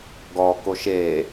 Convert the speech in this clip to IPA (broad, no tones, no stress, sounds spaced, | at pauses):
ɡ ɔ k o ʃ e